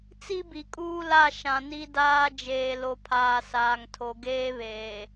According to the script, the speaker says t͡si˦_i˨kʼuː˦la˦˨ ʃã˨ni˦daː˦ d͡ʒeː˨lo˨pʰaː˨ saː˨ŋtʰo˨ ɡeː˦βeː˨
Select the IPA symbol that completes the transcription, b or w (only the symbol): b